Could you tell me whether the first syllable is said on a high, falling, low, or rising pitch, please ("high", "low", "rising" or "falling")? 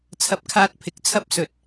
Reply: low